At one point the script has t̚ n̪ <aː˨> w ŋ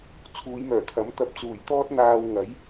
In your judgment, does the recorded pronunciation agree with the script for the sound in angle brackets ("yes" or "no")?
yes